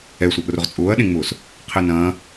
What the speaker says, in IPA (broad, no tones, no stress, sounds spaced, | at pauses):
ɛ sʷ ɐ ʔ r ʊ ʁ t͡sʼ ʊː ɐ̯ ɗ ẽ ŋ͡m ʊː s | qʰ e n ɐ̃ː